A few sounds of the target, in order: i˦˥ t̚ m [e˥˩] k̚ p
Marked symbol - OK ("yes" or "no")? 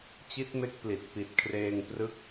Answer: no